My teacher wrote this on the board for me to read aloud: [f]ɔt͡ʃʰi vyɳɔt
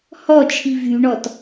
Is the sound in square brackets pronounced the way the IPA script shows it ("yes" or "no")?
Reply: no